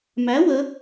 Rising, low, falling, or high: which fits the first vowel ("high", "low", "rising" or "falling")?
rising